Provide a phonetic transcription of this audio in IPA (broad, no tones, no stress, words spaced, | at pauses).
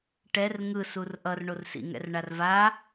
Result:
ʈɛr ŋɯ surʔʌr ɳorsḭŋɛ̰r ɳarva